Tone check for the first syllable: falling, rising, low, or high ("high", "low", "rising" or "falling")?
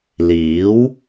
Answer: rising